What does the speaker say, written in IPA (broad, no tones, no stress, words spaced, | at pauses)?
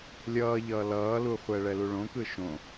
lʲʌːʎʌː lʌːluχʷɛ ɭɛluɭõkɯ ʃõ